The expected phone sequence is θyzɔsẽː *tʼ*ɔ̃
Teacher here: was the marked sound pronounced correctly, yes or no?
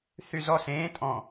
yes